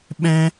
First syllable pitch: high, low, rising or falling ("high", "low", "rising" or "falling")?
high